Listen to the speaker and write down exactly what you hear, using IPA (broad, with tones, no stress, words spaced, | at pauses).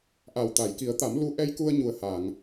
ʔa˨˩wt̪a˨˩˨jki˨˩˦ə̯t̪a˨˩˦m lu˧˥ʔɛ˧jku˧ə̯ ɲu˨˩ə̯ha˨˩˨ŋ